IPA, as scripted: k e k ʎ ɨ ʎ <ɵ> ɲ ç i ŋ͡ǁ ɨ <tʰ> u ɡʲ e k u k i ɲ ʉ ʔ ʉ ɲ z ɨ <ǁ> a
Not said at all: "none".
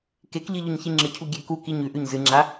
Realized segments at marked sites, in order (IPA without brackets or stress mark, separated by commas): ɵ, cʰ, ŋ͡ǁ